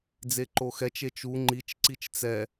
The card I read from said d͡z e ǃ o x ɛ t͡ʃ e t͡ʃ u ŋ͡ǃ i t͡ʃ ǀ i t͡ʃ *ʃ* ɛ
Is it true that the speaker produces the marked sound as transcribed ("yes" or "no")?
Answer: no